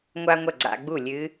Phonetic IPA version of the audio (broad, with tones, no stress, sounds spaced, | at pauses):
ŋʷ a˥ ŋʷ ɐ˥˩ ɡ͡ǀ a̰˧ ɡ͡b u˥˩ lʲ ɨ˧˥